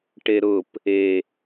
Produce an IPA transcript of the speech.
ʈ e ɾ ʊ p | e

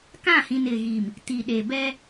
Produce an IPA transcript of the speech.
k ã˦˨ h ĩ˨ n ɪ˨ ɣ iː˨ m | t i˨ ɗ e˨ b ɛ˦

